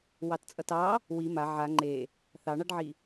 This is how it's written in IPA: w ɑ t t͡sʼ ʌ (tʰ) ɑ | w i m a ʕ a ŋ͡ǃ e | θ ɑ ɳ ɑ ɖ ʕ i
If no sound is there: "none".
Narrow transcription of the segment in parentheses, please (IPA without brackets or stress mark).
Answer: t